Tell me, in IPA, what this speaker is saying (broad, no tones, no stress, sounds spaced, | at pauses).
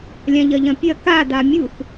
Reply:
lʲ ã ʎ ɐ ʎ ɐ̃ pʲ ɐ k a d a mʲ u θ